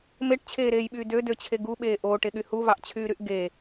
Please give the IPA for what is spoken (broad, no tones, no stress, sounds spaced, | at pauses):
m e ʈ t͡ɕʰ eː ɾ eː j ɓ yː d ø d ø t͡ɕʰ e ɡ u ɓ eː ʔ oː ʈ e ɠ y h u v ɑ ʔ t͡ɕʰ yː ɾ y ʔ ɡ e